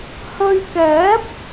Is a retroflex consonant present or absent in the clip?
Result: absent